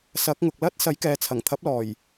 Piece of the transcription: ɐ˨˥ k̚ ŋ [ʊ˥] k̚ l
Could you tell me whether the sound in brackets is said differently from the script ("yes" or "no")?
yes